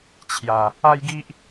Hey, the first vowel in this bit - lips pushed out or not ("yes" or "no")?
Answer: no